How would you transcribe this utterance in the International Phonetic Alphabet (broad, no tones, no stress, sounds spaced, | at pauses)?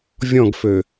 vʲ ɔ̃ ɡ f ø